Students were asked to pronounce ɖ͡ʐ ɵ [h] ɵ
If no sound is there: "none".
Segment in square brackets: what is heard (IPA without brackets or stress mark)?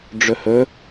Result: h